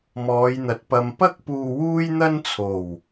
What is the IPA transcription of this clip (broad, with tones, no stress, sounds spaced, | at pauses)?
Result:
m ɔː˨˧ j n̪ ɐ˨ t̚ p ɐ˨ m p ɐ˥ k̚ p uː˧ w uː˥ j n̪ ɐ˥ n t͡sʰ o˨˩ w